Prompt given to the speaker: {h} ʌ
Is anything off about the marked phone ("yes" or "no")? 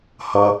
no